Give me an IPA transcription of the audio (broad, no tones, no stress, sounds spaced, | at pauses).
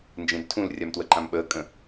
n d͡ʒ ẽ d tʰ ũ l rʲ a m t w ə ǃ ã m ɓ əː kʼ ə̃